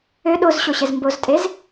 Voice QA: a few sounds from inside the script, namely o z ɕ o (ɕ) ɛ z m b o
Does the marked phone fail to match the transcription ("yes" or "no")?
no